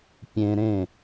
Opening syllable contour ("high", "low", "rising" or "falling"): high